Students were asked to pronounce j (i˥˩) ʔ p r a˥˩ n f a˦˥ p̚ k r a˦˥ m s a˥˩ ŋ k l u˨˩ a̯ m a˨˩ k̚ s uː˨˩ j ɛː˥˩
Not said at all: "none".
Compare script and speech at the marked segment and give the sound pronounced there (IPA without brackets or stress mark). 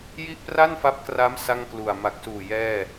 i˥˩